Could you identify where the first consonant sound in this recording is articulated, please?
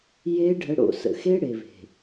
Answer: palatal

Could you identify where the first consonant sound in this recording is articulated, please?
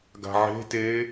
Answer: velar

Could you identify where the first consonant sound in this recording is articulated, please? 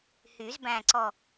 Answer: glottal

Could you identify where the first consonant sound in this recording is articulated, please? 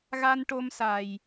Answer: velar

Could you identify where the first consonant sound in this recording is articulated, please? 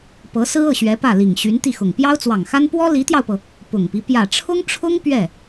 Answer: labial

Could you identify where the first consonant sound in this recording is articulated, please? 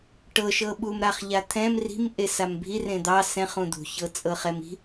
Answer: retroflex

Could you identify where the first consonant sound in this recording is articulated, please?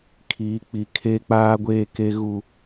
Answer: velar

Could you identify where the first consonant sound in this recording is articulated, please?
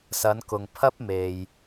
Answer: alveolar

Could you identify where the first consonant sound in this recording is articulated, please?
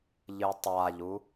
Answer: palatal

